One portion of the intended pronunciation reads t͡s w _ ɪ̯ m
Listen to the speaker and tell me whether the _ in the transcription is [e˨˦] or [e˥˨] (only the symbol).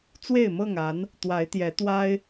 e˥˨